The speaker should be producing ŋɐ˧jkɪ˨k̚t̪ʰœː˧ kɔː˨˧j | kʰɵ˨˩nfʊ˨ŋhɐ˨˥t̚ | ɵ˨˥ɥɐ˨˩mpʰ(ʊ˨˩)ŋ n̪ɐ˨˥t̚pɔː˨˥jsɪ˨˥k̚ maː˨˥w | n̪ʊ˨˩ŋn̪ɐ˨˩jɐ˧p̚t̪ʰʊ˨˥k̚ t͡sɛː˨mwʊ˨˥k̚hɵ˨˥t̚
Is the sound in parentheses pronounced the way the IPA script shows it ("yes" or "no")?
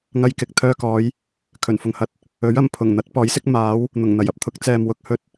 yes